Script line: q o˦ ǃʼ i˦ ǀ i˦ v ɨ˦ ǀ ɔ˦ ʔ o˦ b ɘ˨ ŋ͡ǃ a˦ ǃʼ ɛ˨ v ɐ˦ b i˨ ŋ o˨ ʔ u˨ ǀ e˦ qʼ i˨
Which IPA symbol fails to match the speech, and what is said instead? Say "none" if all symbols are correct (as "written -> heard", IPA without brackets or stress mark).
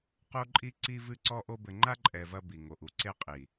none